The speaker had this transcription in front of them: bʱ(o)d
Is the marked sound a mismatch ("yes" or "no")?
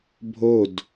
no